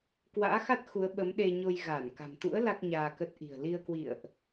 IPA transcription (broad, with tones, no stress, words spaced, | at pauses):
kwa̰ː˧˥xa˦˥t̚xu˨˦ə̯ ɓə˨˦mɗe˧ɲo˧j ɣaː˧˩nka̤˨˩mt̪ṵ˧˥ə̯ la˦˥k̚ɲaː˧kə˦˥t̚ ʔi̤˨˩ə̯li˧ə̯ kwḭ˧˨ə̯ʔ